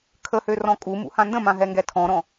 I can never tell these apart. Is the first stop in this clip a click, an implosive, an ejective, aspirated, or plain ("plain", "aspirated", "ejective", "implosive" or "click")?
aspirated